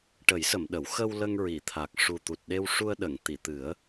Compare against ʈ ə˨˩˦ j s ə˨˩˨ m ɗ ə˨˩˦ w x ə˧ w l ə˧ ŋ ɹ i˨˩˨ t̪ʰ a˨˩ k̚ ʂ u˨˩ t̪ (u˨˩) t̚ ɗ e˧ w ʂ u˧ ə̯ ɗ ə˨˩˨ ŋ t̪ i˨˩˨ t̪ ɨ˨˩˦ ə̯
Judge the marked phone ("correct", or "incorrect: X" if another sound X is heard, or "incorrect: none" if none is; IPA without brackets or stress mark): correct